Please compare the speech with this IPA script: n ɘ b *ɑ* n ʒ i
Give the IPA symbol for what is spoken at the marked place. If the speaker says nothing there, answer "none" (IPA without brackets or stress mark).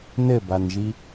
a